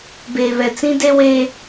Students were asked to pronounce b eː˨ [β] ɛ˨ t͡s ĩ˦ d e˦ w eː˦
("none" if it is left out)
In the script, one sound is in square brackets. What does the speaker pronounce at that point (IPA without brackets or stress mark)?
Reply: β